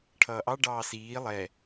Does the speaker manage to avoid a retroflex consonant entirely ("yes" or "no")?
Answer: no